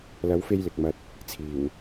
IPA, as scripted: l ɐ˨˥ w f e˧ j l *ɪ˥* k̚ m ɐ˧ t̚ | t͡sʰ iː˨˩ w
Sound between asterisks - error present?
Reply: yes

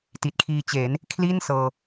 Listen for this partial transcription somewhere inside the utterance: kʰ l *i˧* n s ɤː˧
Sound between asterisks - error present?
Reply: yes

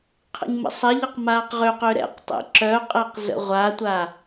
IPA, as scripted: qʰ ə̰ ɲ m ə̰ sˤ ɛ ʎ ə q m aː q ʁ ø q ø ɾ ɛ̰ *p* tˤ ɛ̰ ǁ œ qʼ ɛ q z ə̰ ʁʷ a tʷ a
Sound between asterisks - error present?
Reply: yes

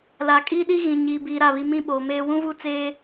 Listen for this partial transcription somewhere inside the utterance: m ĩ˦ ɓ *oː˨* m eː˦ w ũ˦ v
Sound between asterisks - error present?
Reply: no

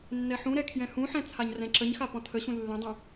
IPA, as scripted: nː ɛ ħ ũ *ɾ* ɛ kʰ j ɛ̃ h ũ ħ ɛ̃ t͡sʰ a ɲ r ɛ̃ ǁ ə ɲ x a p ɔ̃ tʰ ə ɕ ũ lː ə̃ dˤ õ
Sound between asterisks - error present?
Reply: no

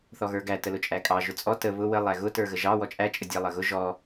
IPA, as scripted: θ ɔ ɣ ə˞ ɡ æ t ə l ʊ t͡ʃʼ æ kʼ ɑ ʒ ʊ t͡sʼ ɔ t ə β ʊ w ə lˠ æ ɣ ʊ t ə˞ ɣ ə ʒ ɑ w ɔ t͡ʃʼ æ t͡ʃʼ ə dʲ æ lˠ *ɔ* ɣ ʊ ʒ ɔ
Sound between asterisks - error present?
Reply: yes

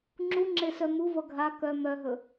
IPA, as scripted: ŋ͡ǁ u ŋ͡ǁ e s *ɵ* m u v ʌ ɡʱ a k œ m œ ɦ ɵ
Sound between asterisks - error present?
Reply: yes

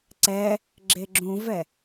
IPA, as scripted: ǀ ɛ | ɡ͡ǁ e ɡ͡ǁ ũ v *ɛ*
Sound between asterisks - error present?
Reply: no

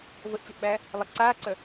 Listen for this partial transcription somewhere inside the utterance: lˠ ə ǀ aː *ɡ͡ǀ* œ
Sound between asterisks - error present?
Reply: yes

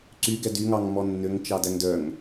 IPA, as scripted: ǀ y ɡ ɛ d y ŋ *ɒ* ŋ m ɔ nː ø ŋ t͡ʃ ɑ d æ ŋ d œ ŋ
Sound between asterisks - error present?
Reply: yes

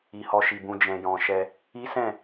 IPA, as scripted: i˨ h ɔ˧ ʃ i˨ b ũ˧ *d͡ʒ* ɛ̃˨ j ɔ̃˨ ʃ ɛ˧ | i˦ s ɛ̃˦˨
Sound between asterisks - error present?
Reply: no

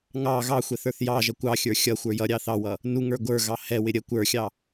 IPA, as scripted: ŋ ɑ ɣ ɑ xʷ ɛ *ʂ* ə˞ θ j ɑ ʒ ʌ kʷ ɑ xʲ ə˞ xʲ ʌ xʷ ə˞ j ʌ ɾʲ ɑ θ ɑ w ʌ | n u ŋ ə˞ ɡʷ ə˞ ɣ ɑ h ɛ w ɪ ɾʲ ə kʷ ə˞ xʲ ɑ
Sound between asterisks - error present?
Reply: yes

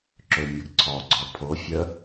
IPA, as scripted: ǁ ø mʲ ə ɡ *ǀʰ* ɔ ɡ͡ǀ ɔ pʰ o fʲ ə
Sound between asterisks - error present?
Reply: no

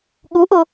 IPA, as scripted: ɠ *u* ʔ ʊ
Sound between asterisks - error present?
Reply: no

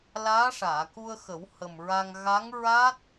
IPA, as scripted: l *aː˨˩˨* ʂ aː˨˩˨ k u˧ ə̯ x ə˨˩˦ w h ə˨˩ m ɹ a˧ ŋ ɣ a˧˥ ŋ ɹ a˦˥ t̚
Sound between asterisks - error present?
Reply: yes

